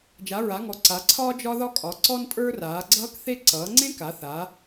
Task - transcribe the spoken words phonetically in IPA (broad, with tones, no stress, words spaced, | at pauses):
d͡ʒa˩˧ɹa˩˧ŋɔ˩˧ ǀa˩˧ǀʰɒː˦ d͡ʒɒ˦ðɒ˦kʼɒ˩˧ ǀɔ˦ntʼə˞˦raː˩˧ ɡ͡ǀʌː˦kθe˦ ǀʌː˩˧ŋ͡ǀẽ˦ka˩˧ θa˩˧